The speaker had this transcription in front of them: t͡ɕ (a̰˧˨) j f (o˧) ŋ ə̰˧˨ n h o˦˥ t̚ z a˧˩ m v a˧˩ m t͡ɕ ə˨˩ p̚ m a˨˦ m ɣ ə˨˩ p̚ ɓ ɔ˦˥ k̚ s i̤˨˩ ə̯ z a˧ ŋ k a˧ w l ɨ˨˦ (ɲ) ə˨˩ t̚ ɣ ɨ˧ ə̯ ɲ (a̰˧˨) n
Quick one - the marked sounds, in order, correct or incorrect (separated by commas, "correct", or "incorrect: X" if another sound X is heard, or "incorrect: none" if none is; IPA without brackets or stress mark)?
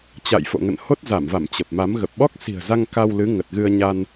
correct, incorrect: o̰˧˨, incorrect: ŋ, incorrect: a˧